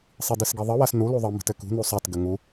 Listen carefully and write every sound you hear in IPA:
sˤ i d ɨ s ɡ i ðˤ ɨ w a s n u l u ðˤ ə m ə̤ t ɘ k ṳ n u sˤ a t ɡ ə ŋ u

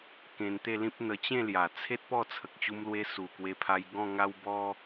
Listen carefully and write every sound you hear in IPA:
k ẽ˧ n t̪ e˥˧ l ĩ˦ p̚ n̪ ə˧ t͡ɕ ẽ˥˧ l j a˨˩ t͡sʰ e˦ t̚ p ɔ˥˧ t͡sʰ ə˨ k̚ t͡ɕ u˧ m l w e˧ s u˨˩ k w e˧ pʰ a˧ j ɡ ɔ̃˥˧ ŋ a˦ w b ɔ˦

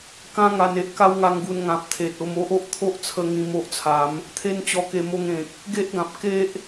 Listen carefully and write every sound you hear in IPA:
k ã˦ ŋ a˧ n e˦ ʔ k a˦ w ŋ a˧ ŋ ɡ u˧ n ŋ ã˨ p̚ t̪ʰ e˨ t̚ o˧ m o˦ ʔ o˦ ʔ t̪ʰ o˦ ʔ t͡sʰ ə˧ ŋ ĩ˧ m o˦ ʔ t͡sʰ a˨˦ m | t̪ʰ e˦ n t͡ɕ ɔ˧ k e˧ m o˧ ŋ ẽ˨ k̚ | ɡ e˦ ʔ ɡ ã˨ p̚ k e˦ ʔ

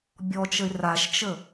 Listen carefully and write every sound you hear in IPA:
bʲ ɔ t͡ʃ ə ɪ̯ r a ʃ t͡ʃ ə

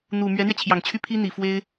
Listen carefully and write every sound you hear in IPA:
n̪ u˨˩ m ɥ ɛ˧˥ n̪ ɥ ɛ˧ t͡ɕʰ j ɑ˨˩ ŋ t͡ɕʰ y˥˩ pʰ i˥ n̪ i˨˩ f w e˥ ɪ̯

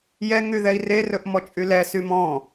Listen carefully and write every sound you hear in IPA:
j ɛ ŋ y ð ɛ i̯ r e r ɵ ʔ m ɔ t͡ʃʼ y l ɛ s y m ɔ̃

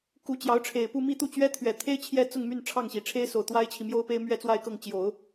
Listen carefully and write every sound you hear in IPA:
k u˧˥ t͡ɕ j ɑ˧˥ ʊ̯ ʈ͡ʂʰ e˨˩ ɪ̯ p u˥˧ m i˥˧ t̪ u˥˩ t͡ɕ ɥ ɛ˥ t̪ʰ ɥ ɛ˨˩ t̪ʰ e˥ ɪ̯ t͡ɕʰ j ɛ˥ t͡s ʊ˥˧ ŋ m y˥˧ n ʈ͡ʂʰ ɑ˥˩ ŋ ɕ i˨˩ ʈ͡ʂʰ e˥ ɪ̯ s o˨˩ ʊ̯ t̪ w a˥ ɪ̯ t͡ɕʰ i˨ m j o˥ ʊ̯ p e˥ ɪ̯ m ɥ ɛ˥˧ t͡s w a˥˧ ɪ̯ k ɤ˥˩ ŋ t͡ɕ j o˨˩˦ ʊ̯

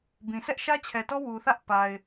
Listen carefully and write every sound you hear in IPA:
b ĩ˨ sʰ ɛ˦ ʔ ʃ ä˦ t͡ɕʰ ɛ˨ t ɔ˦ w u˨ θ ä˦ ʔ p a˨ ɪ̯

